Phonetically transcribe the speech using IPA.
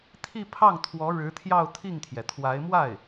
t̪ʰ i˥˧ pʰ ɑ˥˩ ŋ t̪ʰ w ɔ˧˥ ɻ ɻ̩˧˥ t̪ʰ j ɑ˥˧ ʊ̯ t̪ʰ i˥˩ ŋ t̪ʰ j ɛ˩ t̪ʰ w a˧˥ ɪ̯ m w a˥˩ ɪ̯

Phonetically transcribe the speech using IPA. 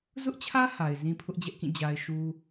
z ʊ˦ ʔ t͡ɕʰ ä˦ h a˨ ɪ̯ z ĩ˦ pʰ ʊ˦ ʔ d͡ʑ ɛ˦ ʔ k ĩ˦˨ d͡ʑ a˦ ɪ̯ ʃ u˦

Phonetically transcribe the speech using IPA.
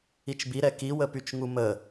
i t͡ʃ b i ɾ ɛ k i w ə p y t͡ʃ ŋ u m ə

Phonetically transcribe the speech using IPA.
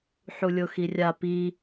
ħ u lʲ o x i rʲ a p i

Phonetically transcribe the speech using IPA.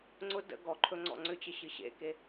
ŋ͡ǀ ʊ d ə̰ ɡ ɔ ǃʰ ɵ ŋ͡ǀ ɔ̰ ŋ͡ǀ ʏ t͡ɕ ə ɕ ɨ ɕ ḛ k e

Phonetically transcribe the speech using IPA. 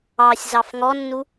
ɑ sʲ z ɑ f ŋ ɔ nː u

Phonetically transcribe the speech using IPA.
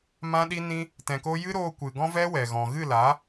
m ã˧ ɗ i˧ n ĩ˧ | t ɛ̃˨ k o˧ j ɨ˦ ɾ oː˧ kʷ ɨ˨ ɡ ɔ̃˦ v ɛ˦ w ɛ˨ ɣ ɔ̃˨ ɣ ɨ˦˨ l a˨˦

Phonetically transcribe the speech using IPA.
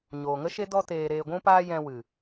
ɲ oː˨ ŋ ə˦ ʃ e˦ d ɔ˧ t eː˨ ɾ eː˨ ɡʷ ũ˧ p aː˧ j ɛ̃˧ w ɨ˨

